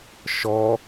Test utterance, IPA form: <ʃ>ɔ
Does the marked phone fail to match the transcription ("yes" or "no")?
no